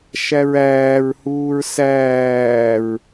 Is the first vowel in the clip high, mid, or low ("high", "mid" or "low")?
low